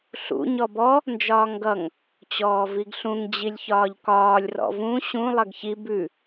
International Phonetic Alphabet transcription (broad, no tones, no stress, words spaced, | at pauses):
ɬṵ ɲɔbɔ | nd͡ʒɒːŋɡʌŋ | t͡ɕɔːviɡɬũŋ d͡ʑilʲçɒːʎkɒːlʲ rɔ̰vũ ɕũ lˠʌɡçi bʉ